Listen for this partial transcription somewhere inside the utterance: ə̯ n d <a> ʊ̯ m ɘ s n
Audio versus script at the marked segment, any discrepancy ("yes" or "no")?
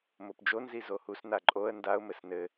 no